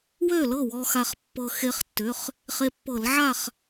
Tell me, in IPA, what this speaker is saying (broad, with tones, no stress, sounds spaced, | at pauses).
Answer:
w ø˥˨ l ɤ˥˨ w ɔ˧ x a˧ χ pː ɤ˧ x e˧ χ tː ʏ˩˧˩ χ | χ e˧ pː ɤ˧˩˧ l ʕ a˥˨ χ